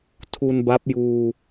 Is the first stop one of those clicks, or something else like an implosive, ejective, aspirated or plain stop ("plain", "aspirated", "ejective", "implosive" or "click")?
aspirated